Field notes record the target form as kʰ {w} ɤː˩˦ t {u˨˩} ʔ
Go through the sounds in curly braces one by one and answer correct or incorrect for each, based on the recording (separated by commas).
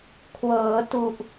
correct, correct